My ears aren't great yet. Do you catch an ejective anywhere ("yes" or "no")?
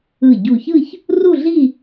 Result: no